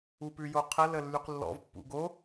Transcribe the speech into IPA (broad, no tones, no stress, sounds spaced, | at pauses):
u p ʉ j o qʰ ə l ə lː y q lː ɔ̰ v pː ṵ ɡ o